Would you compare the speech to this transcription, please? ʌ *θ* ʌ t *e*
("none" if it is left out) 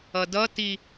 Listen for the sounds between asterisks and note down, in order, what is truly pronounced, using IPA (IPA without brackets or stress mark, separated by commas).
d, i